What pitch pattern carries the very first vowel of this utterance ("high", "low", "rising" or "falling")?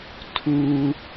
low